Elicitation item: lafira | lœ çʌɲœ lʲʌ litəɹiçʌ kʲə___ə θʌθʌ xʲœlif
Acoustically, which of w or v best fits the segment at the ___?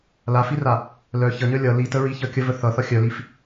v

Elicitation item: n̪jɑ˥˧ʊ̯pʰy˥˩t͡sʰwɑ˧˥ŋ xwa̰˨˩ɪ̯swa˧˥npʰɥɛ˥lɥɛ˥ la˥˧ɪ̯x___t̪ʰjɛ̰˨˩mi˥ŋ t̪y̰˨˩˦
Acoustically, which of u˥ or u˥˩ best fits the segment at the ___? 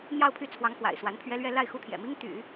u˥˩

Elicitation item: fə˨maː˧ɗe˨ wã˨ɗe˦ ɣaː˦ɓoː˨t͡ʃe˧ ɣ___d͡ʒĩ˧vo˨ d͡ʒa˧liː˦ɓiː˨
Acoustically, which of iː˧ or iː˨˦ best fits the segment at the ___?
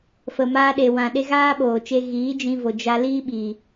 iː˨˦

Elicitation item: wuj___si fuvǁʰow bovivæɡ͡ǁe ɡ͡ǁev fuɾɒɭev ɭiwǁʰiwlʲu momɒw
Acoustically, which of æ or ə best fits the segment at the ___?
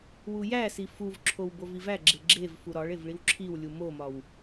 æ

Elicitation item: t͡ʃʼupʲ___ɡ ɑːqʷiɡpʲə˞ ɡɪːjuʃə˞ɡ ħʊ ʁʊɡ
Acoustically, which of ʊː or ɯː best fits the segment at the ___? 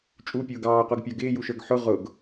ʊː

